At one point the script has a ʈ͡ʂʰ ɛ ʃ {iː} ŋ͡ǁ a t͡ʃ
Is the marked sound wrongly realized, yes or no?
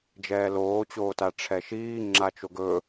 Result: no